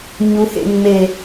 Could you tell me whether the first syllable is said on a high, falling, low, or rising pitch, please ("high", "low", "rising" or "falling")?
low